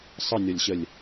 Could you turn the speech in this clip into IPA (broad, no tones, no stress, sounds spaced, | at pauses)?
sˤ ə nʲ ɔ lʲ ɕ ə lʲ